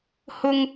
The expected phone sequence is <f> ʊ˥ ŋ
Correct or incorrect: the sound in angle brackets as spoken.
incorrect: h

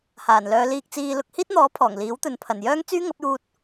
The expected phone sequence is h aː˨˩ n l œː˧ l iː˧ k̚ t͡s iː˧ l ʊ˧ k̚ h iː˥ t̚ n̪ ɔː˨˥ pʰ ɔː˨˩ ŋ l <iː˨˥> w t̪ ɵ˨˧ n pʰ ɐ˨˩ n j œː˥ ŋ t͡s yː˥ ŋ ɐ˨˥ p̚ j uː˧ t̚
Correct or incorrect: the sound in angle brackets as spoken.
correct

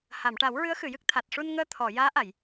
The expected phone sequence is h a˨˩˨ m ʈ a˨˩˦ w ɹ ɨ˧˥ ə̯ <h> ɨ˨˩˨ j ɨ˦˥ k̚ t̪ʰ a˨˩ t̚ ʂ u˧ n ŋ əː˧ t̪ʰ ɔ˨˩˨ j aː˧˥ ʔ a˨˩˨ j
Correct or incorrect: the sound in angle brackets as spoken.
incorrect: x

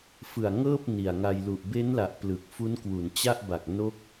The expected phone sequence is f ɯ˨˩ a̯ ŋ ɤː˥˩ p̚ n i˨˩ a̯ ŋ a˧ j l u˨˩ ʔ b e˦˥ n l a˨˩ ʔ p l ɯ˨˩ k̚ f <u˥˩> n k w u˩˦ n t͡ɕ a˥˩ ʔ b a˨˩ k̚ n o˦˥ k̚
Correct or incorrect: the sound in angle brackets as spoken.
incorrect: u˦˥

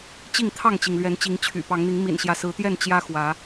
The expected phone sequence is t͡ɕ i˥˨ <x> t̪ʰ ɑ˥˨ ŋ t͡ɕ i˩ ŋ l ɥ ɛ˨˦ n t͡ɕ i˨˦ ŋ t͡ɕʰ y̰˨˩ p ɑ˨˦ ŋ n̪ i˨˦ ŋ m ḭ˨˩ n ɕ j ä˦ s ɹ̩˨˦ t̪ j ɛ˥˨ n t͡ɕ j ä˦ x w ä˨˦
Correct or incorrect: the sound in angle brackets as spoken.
incorrect: ŋ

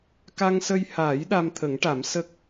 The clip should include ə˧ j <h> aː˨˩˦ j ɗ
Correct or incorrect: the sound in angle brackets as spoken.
correct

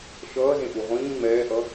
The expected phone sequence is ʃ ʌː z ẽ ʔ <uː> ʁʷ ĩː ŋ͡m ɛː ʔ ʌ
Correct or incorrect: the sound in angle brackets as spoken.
incorrect: u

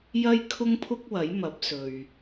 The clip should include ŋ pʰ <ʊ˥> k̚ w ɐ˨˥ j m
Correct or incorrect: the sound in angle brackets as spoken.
correct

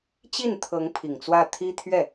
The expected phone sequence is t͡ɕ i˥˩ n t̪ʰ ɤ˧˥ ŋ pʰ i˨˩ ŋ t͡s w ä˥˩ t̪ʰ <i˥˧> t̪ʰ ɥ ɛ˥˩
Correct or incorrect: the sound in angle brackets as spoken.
incorrect: i˥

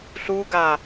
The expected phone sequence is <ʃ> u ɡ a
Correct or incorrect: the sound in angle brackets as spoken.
incorrect: ɬ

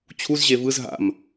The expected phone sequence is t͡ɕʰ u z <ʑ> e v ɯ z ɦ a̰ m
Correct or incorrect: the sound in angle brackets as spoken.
correct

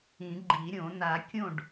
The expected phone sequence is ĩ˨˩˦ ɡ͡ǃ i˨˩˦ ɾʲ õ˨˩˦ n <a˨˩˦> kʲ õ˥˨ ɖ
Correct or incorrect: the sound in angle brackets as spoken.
correct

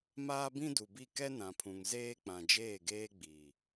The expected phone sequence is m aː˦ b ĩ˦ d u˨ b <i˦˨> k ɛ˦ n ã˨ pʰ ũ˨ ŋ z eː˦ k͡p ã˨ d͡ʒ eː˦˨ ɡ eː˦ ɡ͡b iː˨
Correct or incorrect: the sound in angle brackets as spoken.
correct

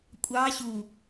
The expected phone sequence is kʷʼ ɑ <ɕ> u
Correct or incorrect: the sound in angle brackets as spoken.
correct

